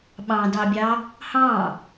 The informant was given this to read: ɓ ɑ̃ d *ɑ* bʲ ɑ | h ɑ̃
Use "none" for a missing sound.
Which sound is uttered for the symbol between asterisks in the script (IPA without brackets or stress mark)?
ɑ